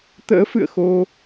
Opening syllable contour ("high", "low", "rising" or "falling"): rising